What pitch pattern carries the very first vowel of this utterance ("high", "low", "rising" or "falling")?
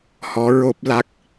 rising